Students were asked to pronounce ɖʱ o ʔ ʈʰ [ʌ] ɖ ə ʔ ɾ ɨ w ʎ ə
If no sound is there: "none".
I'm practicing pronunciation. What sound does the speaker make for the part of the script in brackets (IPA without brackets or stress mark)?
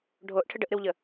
ə